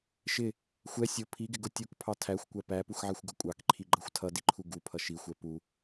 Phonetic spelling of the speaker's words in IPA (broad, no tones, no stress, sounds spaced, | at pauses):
ʃ ɪ | xʷ ɛ sʲ ʊ pʰ i ɡ ɪ ɡ ʊ tʲ u k pʰ ɑ tʰ æ xʷ kʷ æ p æ p u x ʕ ɛ xʷ ɡ ʌ kʷʼ ɑ k ǃʰ i ɡ͡ǃ ʌ xʷ tʰ ʌ d i ǃʰ u ɡ u pʰ ʌ ʃ i xʷ ɛ p u